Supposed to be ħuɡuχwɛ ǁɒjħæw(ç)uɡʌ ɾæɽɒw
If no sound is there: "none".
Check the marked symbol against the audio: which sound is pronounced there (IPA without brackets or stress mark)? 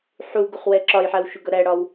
ʃ